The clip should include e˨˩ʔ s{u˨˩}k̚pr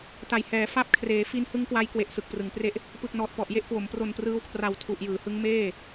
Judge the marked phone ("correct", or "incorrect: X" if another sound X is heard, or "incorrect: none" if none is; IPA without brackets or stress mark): incorrect: ɯ˨˩